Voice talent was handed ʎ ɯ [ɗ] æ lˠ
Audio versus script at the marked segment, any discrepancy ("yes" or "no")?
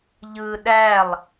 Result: no